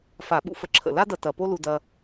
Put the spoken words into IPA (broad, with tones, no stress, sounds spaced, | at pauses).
f a˧˩˧ ɓ ṵ˥ f ə˧ ǁʰ ə̰˨˩ l a˥ d ɐ˧ t ɐ˨˩ p o˥ l u˧ d ɐ˧